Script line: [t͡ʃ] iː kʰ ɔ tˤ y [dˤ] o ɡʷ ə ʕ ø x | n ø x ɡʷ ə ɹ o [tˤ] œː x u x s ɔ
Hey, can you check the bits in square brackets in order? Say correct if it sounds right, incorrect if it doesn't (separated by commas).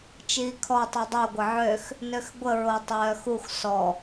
correct, correct, correct